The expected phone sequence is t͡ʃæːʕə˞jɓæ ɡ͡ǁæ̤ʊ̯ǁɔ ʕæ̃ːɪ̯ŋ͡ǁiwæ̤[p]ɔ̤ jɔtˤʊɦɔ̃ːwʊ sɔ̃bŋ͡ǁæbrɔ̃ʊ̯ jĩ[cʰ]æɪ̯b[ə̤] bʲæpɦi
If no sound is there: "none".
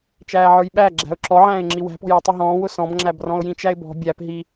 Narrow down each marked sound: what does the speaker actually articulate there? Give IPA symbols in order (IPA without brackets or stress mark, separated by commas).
p, t͡ʃ, ɔ̤